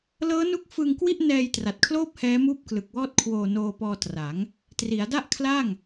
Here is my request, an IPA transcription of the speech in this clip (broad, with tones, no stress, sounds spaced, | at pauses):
l ɤː˦˥ n u˦˥ k̚ f ɯ˧ ŋ k w i˥˩ ʔ n ɛː˧ j t r a˨˩ t̚ kʰ l oː˥˩ p̚ h ɛː˦˥ m uː˥˩ p̚ k l ɯ˨˩ k̚ w ɔː˥˩ t̚ kʰ w oː˧ n oː˧ p ɔː˧ t r a˩˦ ŋ | t r i˩˦ a̯ d a˥˩ ʔ kʰ l a˥˩ ŋ